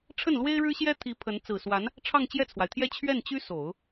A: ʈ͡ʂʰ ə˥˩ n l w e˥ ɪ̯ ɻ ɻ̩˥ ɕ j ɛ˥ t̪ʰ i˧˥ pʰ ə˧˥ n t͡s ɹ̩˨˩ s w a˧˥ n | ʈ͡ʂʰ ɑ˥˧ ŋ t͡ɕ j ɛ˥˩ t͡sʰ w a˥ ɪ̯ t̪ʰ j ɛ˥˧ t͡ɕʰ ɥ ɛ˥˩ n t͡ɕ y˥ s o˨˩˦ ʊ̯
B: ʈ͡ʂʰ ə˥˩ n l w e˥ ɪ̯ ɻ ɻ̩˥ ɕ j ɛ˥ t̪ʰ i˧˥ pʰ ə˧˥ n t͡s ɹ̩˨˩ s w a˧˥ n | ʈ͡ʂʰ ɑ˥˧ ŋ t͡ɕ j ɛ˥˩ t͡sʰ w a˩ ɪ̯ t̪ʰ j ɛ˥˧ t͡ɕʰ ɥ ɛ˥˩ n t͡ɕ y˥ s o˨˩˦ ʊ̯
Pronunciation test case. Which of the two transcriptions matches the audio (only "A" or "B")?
B